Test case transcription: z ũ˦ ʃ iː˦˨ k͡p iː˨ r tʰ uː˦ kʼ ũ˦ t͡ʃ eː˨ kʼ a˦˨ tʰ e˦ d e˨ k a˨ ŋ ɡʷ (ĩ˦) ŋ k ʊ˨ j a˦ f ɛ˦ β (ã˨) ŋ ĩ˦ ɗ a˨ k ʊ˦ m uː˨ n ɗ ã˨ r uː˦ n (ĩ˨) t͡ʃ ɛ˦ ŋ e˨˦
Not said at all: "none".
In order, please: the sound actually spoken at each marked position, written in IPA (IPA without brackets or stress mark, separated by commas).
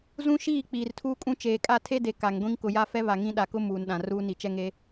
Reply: ĩ˦, a˨, i˨